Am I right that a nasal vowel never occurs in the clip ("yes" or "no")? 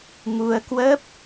yes